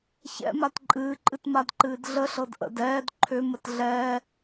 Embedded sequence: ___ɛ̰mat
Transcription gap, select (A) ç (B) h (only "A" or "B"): A